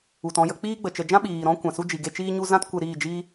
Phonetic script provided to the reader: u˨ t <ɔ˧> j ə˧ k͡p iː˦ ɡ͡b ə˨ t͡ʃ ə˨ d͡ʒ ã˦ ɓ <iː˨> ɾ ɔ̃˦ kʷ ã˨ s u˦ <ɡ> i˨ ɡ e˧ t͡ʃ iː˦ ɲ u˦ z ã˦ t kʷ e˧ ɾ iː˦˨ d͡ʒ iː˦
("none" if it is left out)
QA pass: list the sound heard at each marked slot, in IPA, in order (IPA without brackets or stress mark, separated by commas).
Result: ɔ̃˧, iː˨, d͡ʒ